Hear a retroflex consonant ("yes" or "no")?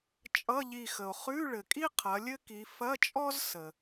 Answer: yes